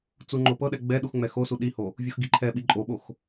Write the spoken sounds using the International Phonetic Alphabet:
t͡suŋ͡ǃopɤɗɛ ɡ͡bɛ ɗuxŋ͡mɛxosu ɗiho | vʲuxɡiǃʰɛɓi ǃʼoɓox

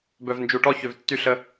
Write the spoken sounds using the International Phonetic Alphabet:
bœ˨vnd͡ʒu˨ʈɔ˧ çø˨vtːy˧ɬə˧

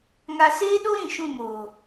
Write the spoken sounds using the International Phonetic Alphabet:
ŋa˧seː˦ɗo˦ɾĩ˨ ʃũ˦˨moː˨

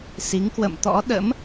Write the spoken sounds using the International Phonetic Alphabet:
si˨˦ŋ kwə̰˧˨mt̪ɔ̰˧˥ ɗə̰˧˥m

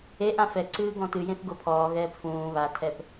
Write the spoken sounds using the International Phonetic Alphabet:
eʔã fɛǀɨː ɡɔ̃tɨjẽθ ɡopʰɔːɣɛːp fũː βatʰɛp

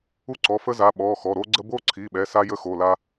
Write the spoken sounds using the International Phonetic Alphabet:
u˥ǀɔ˩˧˩fə˥za˩˧˩ ɓɔ˩˧˩ xɔ˩˧˩ɾo˥ɡ͡ǀə˥ bo˥ǀʰi˩˧˩ɓɛ˩˧˩ sa˥jə˥xo˩˧˩ la˥

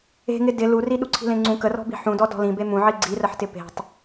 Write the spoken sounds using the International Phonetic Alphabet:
e̤ŋɪ dɪ luri ɗuǀʰi̤lẽŋ͡ǀũ kərɔ̤bi̤ ħũdɔ dɔ̤lĩ bemũʕi ɡ͡ǀirəħtɪ pe̤tˤ

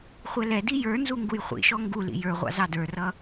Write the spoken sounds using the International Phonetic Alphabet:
χʷɛlɛdi jə˞nzu ŋɡujχʷḭʃɔ ŋɡulḭ jə˞ʁʷɑ̰ zɑdə˞rʌ

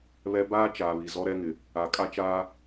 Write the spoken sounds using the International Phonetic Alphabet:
βɛ˦ baː˦ t͡ʃaː˨βi˨ zɔ˦ɾɛ˦ŋɪ˨ | a˨ kʼa˦t͡ʃaː˦

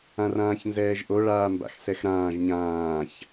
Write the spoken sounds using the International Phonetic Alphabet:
ãrãːçnzɛːʒʔo ɭaːmba̰xsɛxɾãːʒ ɲãːç

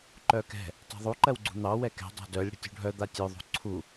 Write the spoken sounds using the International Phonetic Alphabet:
ǃœkɛ̤ | tˤɛ̤ðˤu ǃɜwɡ͡ǀṳn̪ɑ wɛkɛ̤ dˤa̤dœlʲ ɽə̤tʲṳɖʱœ d̪atʲœ ðˤṳǀʰu

